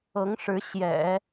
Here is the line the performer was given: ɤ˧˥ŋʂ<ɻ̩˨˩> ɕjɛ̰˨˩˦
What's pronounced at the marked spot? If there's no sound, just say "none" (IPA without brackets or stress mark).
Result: ɻ̩˧˥